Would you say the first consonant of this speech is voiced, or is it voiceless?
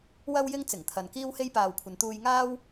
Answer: voiced